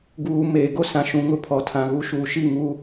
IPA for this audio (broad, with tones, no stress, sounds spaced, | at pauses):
ɡ uː˨ m eː˨ ɡ o˦ s ã˨ ʃ ũ˨ ŋ ʊ˦ pʰ ɔ˨ tʰ ã˨ ɣ u˦ ʃ uː˨ ʃ i˦˨ ŋ u˦